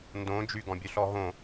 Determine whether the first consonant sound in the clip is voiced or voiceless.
voiced